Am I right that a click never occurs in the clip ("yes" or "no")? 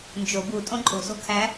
no